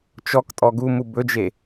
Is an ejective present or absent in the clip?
present